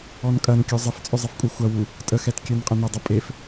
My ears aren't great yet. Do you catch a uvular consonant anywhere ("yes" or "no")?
yes